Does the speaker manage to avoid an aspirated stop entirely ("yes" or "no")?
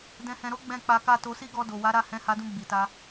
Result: yes